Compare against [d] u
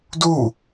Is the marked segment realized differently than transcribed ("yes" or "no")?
no